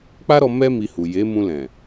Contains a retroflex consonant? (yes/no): no